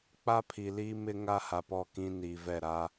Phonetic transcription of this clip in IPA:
k͡p a˦ pʰ i˨ l iː˦ m ɪ˦ ŋ a˦ h a˨ p ɔ˦˨ k ĩ˦ n iː˨ v ɛ˦˨ ɾ a˦

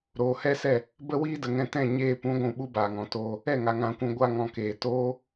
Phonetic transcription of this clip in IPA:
ɾ oː˨ h ɛ˦ s ɛ˦˨ | b ə˧ w iː˧ d ə˨ ŋ ɛ̃˧ t ɛ̃˦˨ ɲ eː˧ p ũ˨˦ ɡʷ ũ˨ ɓ u˦ b aː˨ ŋ ɔ̃˨ t oː˧ | ɛ˦˨ ŋ a˨ ŋ ã˧ kʷ ũ˧ ɡʷ a˧ ŋ ɔ̃˨ k eː˨ t oː˦

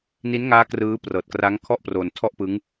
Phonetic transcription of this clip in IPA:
n i˦˥ n ŋ aː˦˥ k r ɯː˦˥ p r ɤː˨˩ t̚ k r a˦˥ ŋ kʰ ɔ˥˩ ʔ p r o˧ n tʰ ɔ˥˩ ʔ p ɯ˦˥ ŋ

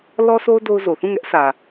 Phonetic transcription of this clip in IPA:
l ɔ˦ sʰ o˦ ʊ̯ d o˦ ʊ̯ z o˨ θ ũ˦˨ ŋ ɛ˦ ʔ s ä˨

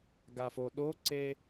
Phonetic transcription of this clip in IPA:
ɡ a f o ɗ o ǀ e

